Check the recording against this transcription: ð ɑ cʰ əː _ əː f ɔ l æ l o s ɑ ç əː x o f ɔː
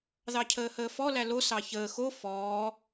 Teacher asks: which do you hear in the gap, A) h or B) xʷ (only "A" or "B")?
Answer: A